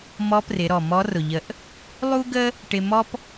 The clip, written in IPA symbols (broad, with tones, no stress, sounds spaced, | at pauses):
m ɔ˧˥ p r ɪ˩˧ ɾ ɔ˩ m ɔ˧˥ r ʊ˩ ʎ ə˧˥ ʔ | lˠ u˥ ɡ ə˥ | ʈ ɪ˧ m ɔ˥ p